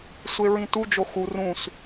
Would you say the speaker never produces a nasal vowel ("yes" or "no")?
no